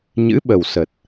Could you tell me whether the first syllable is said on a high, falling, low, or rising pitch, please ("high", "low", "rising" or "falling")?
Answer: rising